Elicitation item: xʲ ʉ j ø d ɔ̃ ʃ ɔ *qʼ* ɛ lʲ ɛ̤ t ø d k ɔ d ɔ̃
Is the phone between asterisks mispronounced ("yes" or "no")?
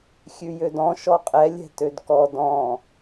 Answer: no